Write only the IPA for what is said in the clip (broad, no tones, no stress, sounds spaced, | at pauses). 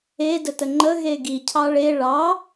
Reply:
e d ə t ə ŋ͡ǃ ə ɣ e ɡ i cʰ ɑ ɭ e ɭ ɑ